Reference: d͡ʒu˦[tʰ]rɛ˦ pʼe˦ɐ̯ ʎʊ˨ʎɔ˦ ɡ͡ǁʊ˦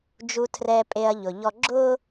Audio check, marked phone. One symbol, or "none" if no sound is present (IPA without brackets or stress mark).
tʰ